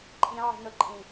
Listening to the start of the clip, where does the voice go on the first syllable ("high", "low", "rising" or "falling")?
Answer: low